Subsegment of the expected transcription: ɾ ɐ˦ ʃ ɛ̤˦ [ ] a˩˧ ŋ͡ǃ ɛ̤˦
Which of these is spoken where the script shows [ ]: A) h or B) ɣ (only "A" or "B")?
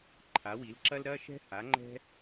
A